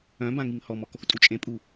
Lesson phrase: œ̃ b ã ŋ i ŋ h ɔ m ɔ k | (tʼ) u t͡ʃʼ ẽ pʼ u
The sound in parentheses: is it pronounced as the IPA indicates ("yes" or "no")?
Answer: yes